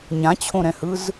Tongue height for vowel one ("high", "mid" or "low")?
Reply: low